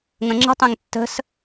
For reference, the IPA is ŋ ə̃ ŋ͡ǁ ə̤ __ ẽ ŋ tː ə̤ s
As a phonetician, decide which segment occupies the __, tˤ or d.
tˤ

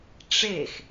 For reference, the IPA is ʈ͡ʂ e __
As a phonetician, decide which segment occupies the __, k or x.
x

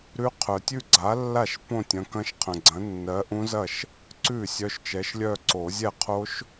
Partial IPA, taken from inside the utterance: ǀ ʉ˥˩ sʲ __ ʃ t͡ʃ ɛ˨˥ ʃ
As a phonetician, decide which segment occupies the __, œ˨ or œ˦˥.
œ˦˥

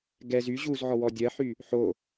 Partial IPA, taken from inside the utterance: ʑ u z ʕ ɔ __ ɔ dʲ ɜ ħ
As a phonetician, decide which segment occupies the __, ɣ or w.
w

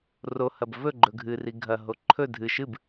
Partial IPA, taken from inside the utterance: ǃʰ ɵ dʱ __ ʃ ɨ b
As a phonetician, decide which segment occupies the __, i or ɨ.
ɨ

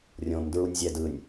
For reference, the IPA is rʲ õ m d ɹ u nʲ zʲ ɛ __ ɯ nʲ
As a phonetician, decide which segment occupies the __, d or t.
d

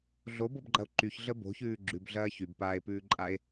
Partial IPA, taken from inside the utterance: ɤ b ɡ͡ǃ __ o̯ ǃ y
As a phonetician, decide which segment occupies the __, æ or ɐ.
ɐ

